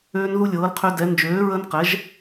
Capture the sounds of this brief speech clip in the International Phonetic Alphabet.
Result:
øː˦nðu˦lʲɤː˨˥l qʰø˦dɛ˨˥ nd͡ʒøː˨˥ɹə˦nqɛ˨˥ʒ

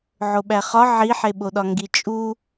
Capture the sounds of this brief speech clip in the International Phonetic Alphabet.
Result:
ʕoɓæχɒ ʕiħeɓoɗɒ ŋɡit͡ʃʼu

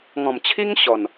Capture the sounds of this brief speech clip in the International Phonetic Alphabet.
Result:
ŋɔ̃˨˩mt͡ɕʰi˦ŋ ɕɔ˨˩n

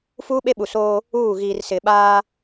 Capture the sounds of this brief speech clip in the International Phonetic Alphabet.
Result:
fuː˦ɓe˦ɓu˨soː˦ | uː˦˨ ɣiː˨rsɪ˨ ɓaː˦

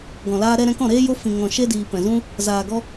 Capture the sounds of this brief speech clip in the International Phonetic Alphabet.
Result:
ɡɔ̃˨laː˧ɾɛ˧ ɾɛ̃˧kɔ̃˦˨ɾeː˦ jo˦fĩ˨ ŋɔ̃˨ ʃe˦ diː˨ pɛ̃˨zũ˦ | zaː˨ɡɔ˧

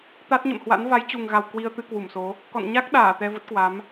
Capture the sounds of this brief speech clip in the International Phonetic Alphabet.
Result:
t̪a˦˥t̚ɲə̰˧˨mhwa̰˧˥n va˨˦jt͡ɕu˨˩ŋɣa˨˩w kwi˧ə̯t̪ɨ˧kwu˧˩mso˨˦ | kɔ̰˧˨nɲa˦˥k̚ɗaː˧˩ t̪ɛ˧və˦˥t̚kwa˨˦m

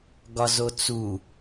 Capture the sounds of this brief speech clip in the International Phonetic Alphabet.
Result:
ɡɒzot͡su

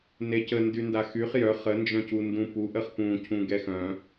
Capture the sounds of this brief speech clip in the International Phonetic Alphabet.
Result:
necəndy ndaxyχ jœ χənd͡ʒœ̃cu ndũpuʔəχ pũcʰũ ɡɛxœ̃

